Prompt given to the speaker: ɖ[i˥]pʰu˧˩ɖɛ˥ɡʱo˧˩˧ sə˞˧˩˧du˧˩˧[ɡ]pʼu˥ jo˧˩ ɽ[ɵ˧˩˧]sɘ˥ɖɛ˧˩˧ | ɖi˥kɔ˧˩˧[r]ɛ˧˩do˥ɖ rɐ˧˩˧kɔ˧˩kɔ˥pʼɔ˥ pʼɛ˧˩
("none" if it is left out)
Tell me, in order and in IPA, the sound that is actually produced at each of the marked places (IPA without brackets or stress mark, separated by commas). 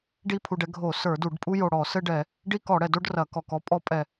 i˥, ɖ, ɔ˧˩˧, ɽ